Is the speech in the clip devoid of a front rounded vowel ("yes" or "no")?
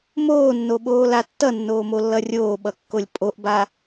yes